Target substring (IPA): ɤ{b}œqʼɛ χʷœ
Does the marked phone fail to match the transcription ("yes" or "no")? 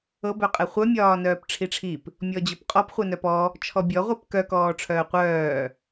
no